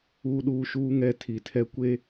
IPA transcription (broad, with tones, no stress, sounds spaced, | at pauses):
uː˦ ɗ uː˦ ʃ uː˦ ŋ ɛ˦˨ tʰ i˨ tʰ ɛ˦ kʷ e˦